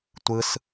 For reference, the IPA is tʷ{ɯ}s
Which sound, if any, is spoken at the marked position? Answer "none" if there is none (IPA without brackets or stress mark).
ɯ